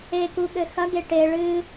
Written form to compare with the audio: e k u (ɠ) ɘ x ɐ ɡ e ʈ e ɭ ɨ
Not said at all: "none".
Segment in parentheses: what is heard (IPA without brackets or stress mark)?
ɠ